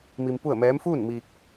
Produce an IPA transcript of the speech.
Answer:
m i˧ m p u˥˨ ə̯ m ɛː˧˥ m f uː˥˨ n m i˧ k̚

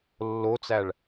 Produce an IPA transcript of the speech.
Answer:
lː o t͡s æ ɭ

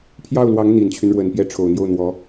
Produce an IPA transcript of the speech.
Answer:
pʰ j ɑ˥˩ ʊ̯ l w ɑ˧˥ ŋ n̪ i˨˩ n t͡ɕʰ y˦ n ɻ w ə˨˩ n p j ɛ˥˩ ʈ͡ʂʰ o˨˩ ʊ̯ n̪ j o˥˩ ʊ̯ n̪ w ɔ˧˥

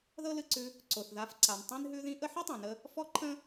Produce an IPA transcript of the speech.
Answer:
ð ɤ˥ l ɨ˧ ǀ ʉ˧ | ǀ o˩ θ ð a˧ f ǀ a˩ n tˤ ĩ˥ n ɦ ʉ˥ ð ĩ˥ ʔ ə˥ ħ i˥ tˤ ĩ˩ n ə˧ | f ɔ˥ ǃʰ ə̃˥

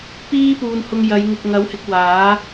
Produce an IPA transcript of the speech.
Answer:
p iː˥ p uː˨ n h ʊ˧ ŋ j ɐ˨˧ j ŋ ɪ˨ k̚ ŋ ɐ˨˥ w h ɪ˧ k̚ w aː˨˥

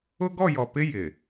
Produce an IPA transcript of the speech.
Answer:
ʊ˦ ɡ ɔ˦˨ j ɔ˨ p ɪ˦ j ɪ˨

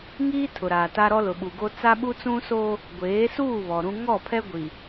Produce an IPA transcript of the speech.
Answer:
ŋ iː˦ tʰ ʊ˨ ɾ aː˨ t a˦ ɾ ɔ˦ l ʊ˨ ɓ u˨ ɡ o˦ t͡s a˦ ɓ u˦ t͡s ũ˦ s o˦ | ɡʷ eː˨˦ s uː˦˨ β ɔ˨ ɾ ũ˦ ŋ ɔ˦˨ pʰ ɛ˦ ɡʷ i˨

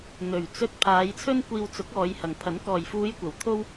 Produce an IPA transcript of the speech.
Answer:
n̪ ɵ˨˩ ɥ t͡s ɵ˧ t̚ pʰ aː˨˧ j t͡sʰ ɵ˥ n kʷ iː˧ w t͡s ʊ˨˥ k̚ ɔː˨˧ j h ɐ˨˩ ŋ pʰ ɐ˨˥ n k ɔː˨˩ j f uː˨˧ j kʷ ɐ˨˩ w t̪ʰ o˧ w

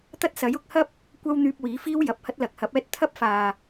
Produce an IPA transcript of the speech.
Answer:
t̪ ɐ˥ t̚ s ɐ˨˥ j ʊ˨˥ k̚ h ɐ˥ p̚ | kʷ ɐ˥ w n̪ yː˧ p̚ w iː˨˥ f iː˥ w j ɐ˨ p̚ h ɐ˥ t̚ l ɐ˨ k̚ h ɐ˨˥ p̚ ɛː˥ t̚ t̪ʰ ɐ˥ p̚ f aː˨

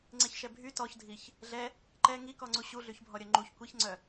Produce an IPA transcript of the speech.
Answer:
ŋ͡ǀ e ç ʃ ɛ bʱ y t ɔ ç dʱ i ç | ɮ ɛ | ǃ ɛ ŋ i k ɔ ŋ͡ǀ u ɕ u ɮ y ç bʱ ɔ ɾʲ œ ŋ͡ǃ u ç kʷ i ç ŋ͡ǀ œ

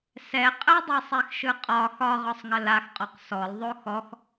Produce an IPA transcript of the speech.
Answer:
s ɛ qʼ ə dˤ ɯ sˤ ɛ x ʃ ɯ qʼ ɒ x ɒ ʁ ɒ sˤ ŋ ə l a x qʼ ɔ q s ɔ l ðˤ o x ɔ x

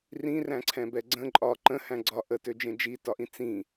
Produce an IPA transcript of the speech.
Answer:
r ĩ r æ̃ ǀʰ ɛ̃ b ɛ ɡ͡ǀ ə̃ ǃʼ ɒ ǃ ə̃ h æ̃ ɡ͡ǀ ɒ ʔ ə t ø d͡ʒ ẽ d͡ʒ i t ɒ ʔ ĩ t͡s ĩ

